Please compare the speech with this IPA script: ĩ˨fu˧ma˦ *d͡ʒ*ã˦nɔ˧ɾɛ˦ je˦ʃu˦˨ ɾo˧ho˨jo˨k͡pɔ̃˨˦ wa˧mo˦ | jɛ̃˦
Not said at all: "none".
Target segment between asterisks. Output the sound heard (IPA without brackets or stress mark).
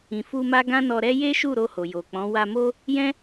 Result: ɡ